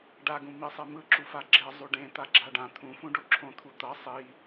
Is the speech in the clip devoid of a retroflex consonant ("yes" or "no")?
no